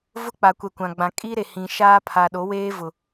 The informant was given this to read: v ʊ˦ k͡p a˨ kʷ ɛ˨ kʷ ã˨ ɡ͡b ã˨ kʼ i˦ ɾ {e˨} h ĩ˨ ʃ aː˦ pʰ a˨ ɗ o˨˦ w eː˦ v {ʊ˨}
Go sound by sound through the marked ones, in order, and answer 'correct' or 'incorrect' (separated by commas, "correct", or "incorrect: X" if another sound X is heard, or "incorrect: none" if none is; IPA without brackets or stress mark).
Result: correct, correct